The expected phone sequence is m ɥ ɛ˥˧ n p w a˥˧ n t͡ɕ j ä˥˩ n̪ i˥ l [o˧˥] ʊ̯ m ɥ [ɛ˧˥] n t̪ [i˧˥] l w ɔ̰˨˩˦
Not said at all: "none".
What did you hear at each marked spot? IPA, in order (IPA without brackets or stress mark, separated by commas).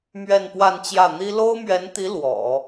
o˥, ɛ˧˥, i˧˥